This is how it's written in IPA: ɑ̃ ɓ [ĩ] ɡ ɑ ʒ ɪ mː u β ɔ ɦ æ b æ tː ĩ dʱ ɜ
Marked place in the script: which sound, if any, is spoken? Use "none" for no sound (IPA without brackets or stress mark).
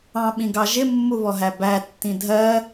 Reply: ĩ